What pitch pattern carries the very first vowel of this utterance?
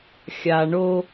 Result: low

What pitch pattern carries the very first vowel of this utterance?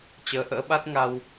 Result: rising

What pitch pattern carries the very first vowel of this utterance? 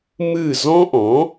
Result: falling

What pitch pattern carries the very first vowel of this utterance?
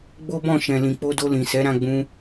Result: high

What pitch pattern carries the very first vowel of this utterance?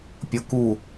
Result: low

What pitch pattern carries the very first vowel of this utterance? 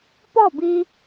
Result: falling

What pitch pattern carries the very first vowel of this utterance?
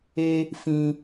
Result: high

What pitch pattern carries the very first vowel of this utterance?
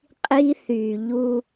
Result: high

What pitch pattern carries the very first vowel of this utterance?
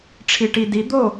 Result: low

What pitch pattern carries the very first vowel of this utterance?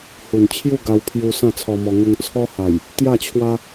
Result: low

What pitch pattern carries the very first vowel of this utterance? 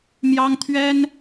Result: high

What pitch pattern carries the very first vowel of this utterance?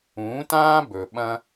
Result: rising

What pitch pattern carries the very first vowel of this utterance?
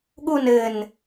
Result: falling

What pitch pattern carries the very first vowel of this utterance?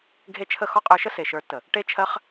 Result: high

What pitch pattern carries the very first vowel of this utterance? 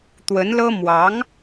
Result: rising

